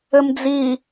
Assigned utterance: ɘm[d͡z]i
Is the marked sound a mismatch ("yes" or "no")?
no